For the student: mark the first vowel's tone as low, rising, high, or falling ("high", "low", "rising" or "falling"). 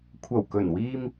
low